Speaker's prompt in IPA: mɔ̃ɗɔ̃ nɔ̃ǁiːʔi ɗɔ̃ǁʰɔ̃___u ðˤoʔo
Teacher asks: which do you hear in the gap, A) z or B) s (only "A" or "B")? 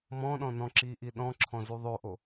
A